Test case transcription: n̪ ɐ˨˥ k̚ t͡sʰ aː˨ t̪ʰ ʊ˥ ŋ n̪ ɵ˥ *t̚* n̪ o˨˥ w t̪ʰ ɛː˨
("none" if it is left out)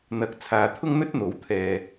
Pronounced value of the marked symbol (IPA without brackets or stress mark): t̚